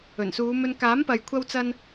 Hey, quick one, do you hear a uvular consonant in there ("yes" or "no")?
no